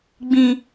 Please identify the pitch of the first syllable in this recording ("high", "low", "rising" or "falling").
high